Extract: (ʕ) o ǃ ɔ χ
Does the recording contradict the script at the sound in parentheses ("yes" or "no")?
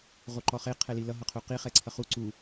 yes